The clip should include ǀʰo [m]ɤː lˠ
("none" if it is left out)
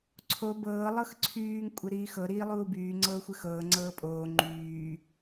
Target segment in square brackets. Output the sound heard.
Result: b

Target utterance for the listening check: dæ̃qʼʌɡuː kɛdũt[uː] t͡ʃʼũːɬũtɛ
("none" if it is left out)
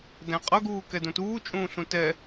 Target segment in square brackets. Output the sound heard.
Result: uː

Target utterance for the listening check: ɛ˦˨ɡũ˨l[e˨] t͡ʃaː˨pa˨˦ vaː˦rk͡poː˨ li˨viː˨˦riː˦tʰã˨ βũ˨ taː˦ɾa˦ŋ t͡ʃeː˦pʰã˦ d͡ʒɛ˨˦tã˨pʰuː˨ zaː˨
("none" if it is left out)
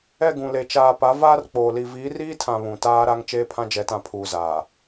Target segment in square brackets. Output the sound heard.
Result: e˨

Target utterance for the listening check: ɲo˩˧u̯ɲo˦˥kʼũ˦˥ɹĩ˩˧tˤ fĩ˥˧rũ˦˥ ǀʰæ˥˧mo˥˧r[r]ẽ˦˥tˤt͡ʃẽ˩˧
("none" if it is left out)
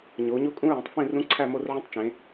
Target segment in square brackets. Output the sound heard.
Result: ʕ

